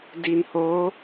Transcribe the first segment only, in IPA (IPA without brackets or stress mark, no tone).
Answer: d